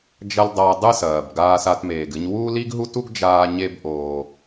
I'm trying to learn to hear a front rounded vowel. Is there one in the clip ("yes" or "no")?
no